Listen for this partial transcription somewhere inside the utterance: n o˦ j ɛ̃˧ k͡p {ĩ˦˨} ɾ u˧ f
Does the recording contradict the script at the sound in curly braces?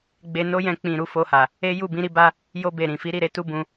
yes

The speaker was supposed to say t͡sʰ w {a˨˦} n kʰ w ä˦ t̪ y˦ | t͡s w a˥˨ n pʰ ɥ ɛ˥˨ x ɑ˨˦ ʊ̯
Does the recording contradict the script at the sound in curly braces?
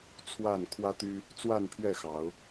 yes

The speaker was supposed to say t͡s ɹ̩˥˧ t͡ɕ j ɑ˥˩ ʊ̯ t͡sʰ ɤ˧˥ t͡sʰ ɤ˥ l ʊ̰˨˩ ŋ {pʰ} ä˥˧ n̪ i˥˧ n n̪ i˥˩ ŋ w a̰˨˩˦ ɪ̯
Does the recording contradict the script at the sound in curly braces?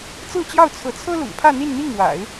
no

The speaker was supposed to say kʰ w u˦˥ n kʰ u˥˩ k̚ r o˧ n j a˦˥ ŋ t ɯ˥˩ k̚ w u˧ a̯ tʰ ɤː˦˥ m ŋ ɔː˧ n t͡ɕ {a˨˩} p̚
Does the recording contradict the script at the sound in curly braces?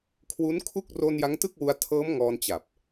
no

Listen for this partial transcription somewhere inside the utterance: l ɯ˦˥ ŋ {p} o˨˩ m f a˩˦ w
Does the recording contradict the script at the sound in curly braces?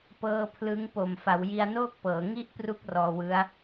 no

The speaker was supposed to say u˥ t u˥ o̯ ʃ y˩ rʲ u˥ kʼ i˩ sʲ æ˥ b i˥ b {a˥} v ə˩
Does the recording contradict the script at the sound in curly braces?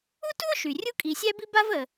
no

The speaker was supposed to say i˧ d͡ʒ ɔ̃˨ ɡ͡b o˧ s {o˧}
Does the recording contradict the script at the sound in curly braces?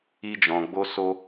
no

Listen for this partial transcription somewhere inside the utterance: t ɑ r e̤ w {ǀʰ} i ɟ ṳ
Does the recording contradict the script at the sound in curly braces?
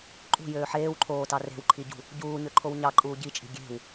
yes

